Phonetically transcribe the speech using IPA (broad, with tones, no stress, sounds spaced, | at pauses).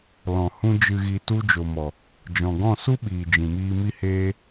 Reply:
l ɔ̃˨ h ũ˦ d͡ʒ ɨ˧ ɣ i˧ t u˦ d͡ʒ o˨ m ɔ˨ | d͡ʒ ɔ̃˨ ɡ ɔ̃˦˨ s u˦ ɓ iː˨ d͡ʒ ĩ˨ m iː˧ m i˦ h eː˦